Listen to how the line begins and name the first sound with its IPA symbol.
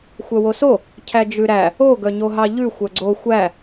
xʷ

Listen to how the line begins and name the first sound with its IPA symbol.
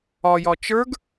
ɒ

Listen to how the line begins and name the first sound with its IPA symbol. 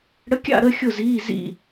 ɽ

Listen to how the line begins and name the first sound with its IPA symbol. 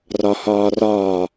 r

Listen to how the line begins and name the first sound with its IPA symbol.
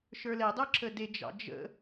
ʃ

